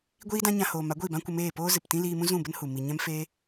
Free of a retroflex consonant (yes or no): yes